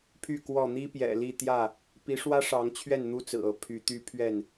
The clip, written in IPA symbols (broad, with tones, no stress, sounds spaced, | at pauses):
pʰ y˥˨ k w ɔ˥˨ n̪ i˦ p j ɛ̰˨˩ l i˥˨ t̪ j ä˥˨ | p i˨˦ ʂ w ä˦ ʂ ɑ˨˦ ŋ t͡ɕʰ ɥ ɛ˥˨ n n̪ u˦ t͡s ɹ̩˨˩ ɤ˨˦ pʰ y˨˦ t̪ y˦ pʰ ɥ ɛ˥˨ n